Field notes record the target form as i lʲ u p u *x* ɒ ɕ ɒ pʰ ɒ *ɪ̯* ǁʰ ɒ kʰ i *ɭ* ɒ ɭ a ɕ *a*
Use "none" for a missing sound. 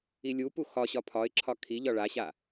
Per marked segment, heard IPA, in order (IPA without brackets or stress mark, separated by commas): x, ɪ̯, ʎ, a